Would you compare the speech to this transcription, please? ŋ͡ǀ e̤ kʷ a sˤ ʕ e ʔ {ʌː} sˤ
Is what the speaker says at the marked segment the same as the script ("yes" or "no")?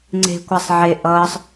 yes